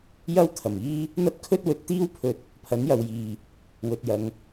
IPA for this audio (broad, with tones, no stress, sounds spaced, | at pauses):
j ɐ˥ w t̪ʰ ɐ˨˩ m iː˥ | n̪ ɐ˥ t̚ kʰ ɵ˥ t̚ w ɵ˨˥ t̚ t̪ iː˥ w pʰ ɵ˧ t̚ | pʰ ɐ˨˥ n j ɐ˨ w j iː˨ | w ɵ˨ t̚ j ɐ˨˧ ŋ